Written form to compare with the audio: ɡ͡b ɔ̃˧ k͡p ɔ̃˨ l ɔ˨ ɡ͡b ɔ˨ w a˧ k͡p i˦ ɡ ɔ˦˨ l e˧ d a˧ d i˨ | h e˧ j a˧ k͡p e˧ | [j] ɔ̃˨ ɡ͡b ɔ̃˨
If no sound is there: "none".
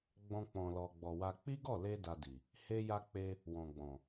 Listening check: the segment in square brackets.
w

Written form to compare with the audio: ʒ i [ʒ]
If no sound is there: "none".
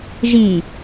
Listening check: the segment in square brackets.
none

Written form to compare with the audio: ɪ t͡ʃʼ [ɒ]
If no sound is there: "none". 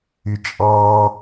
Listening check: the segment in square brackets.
ɑ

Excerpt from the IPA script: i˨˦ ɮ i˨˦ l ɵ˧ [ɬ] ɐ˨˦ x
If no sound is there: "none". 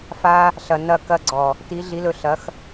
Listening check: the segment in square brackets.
ɬ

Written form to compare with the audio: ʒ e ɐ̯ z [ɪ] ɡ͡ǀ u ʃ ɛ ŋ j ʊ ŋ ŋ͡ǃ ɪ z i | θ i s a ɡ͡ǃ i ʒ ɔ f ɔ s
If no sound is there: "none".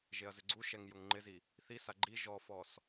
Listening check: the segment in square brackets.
ɪ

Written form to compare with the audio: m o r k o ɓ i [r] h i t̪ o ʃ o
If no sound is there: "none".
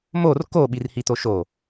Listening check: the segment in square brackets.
r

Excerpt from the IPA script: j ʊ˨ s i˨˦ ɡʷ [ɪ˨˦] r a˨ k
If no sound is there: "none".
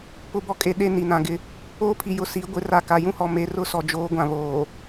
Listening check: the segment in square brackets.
ɪ˨˦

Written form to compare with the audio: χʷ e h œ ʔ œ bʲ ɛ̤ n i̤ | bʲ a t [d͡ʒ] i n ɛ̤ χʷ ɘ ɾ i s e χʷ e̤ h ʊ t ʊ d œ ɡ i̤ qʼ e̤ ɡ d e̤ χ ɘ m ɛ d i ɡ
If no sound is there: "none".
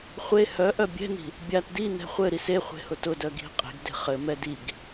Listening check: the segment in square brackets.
d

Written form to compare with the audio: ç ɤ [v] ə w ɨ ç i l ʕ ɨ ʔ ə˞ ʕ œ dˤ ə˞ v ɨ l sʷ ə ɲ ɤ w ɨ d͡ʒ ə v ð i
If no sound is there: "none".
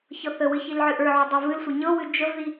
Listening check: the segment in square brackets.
θ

